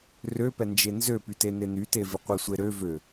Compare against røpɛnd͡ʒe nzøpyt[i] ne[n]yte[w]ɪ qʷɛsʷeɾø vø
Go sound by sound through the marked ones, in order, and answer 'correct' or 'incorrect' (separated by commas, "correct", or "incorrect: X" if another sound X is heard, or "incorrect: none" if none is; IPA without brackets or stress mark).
incorrect: e, correct, incorrect: v